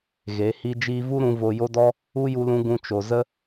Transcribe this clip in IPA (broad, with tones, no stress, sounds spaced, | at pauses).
ɣ e˨˦ h i˧ d͡ʒ iː˧ v u˦ ɾ ũ˧ v o˧ j o˦ d ɔ˦ | u˦ j u˧ l ũ˧ ɡ ũ˧ t͡ʃ o˨ z ə˦